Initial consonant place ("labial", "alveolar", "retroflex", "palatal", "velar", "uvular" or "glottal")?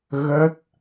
velar